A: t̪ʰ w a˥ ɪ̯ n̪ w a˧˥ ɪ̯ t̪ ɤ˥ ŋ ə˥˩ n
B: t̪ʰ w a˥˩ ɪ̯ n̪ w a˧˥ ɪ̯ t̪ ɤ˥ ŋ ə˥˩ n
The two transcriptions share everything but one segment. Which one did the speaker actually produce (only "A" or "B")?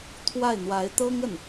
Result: B